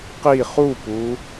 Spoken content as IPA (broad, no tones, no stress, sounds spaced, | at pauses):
q i χ u p u